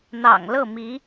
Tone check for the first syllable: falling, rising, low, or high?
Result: low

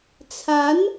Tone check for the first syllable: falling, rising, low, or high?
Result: rising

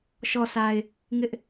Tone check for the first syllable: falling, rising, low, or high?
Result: low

